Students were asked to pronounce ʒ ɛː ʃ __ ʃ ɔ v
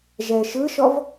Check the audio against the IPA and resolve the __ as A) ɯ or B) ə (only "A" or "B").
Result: A